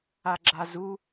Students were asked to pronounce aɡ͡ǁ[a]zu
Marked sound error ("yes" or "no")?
no